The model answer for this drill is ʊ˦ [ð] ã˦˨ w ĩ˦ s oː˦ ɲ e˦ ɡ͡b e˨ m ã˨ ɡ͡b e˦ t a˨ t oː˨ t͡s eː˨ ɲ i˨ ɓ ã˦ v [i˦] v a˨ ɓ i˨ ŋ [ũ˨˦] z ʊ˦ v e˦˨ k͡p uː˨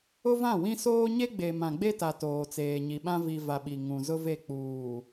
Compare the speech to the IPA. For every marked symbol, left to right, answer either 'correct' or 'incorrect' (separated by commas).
incorrect, incorrect, incorrect